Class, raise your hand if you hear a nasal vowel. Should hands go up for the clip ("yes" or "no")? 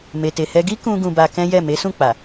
yes